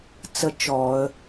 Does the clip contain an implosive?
no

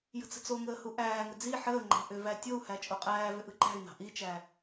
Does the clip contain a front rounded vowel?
yes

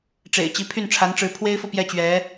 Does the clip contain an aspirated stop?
yes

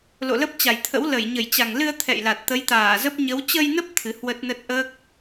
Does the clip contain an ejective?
no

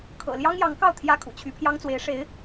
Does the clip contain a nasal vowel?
no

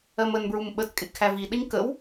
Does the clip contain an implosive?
yes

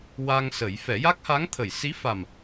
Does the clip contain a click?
no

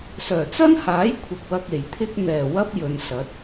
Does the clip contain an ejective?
no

